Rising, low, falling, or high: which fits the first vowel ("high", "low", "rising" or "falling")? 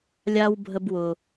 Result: high